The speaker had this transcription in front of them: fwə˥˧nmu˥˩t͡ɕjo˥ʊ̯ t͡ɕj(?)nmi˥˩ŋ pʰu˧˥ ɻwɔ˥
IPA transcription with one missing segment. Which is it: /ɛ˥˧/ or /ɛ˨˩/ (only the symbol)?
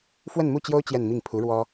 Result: ɛ˥˧